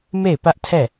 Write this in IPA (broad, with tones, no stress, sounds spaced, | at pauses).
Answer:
m e˦˨ ɪ̯ p ä˦ ʔ tʰ ɛ˦˨